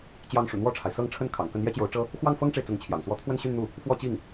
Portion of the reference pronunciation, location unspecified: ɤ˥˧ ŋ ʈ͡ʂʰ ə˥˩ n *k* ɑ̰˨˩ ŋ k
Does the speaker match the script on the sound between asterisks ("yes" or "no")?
no